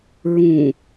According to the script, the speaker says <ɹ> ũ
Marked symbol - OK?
yes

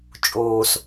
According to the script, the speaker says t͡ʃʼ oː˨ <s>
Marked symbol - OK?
yes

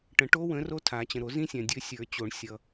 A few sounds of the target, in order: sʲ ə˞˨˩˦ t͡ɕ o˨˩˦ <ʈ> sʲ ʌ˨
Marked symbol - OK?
no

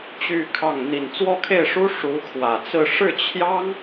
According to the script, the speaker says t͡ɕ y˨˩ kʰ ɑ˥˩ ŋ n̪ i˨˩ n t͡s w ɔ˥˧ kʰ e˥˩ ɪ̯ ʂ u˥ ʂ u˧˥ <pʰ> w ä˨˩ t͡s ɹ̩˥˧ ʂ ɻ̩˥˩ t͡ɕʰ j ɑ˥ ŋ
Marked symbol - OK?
no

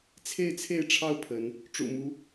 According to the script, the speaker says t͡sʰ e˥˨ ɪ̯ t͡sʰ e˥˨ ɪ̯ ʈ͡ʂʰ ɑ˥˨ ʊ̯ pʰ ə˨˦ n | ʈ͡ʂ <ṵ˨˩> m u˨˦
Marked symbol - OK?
yes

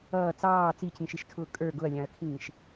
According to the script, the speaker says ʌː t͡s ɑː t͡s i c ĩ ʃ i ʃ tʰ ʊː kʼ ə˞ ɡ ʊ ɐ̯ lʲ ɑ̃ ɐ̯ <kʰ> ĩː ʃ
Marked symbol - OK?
yes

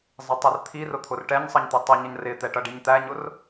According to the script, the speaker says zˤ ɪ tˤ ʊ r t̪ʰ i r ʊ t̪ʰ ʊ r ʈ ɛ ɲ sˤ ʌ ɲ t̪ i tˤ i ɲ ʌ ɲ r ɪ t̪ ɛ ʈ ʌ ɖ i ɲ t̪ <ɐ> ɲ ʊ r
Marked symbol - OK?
no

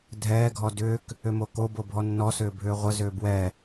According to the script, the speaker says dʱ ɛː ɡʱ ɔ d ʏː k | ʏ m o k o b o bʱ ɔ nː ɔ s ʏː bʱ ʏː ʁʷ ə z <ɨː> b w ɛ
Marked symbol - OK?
no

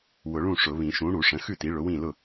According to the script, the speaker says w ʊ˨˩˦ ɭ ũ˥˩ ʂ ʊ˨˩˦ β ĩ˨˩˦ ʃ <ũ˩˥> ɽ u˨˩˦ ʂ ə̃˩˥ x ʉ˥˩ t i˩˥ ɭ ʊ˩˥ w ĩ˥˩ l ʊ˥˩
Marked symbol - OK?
yes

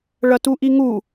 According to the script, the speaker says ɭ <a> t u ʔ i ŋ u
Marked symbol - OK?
no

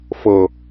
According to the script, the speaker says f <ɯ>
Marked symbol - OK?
no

